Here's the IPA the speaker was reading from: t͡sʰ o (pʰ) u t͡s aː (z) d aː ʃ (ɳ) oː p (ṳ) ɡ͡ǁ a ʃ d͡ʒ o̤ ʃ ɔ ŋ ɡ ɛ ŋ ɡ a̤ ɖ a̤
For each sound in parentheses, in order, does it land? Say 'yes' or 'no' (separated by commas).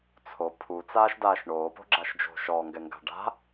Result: yes, no, yes, no